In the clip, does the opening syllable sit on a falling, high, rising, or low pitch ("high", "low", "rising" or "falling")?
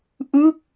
falling